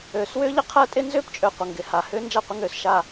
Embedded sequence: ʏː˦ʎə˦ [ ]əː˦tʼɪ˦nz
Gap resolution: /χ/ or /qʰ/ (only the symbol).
qʰ